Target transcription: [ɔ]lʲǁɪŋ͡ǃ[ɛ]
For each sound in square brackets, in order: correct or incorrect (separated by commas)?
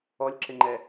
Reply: correct, correct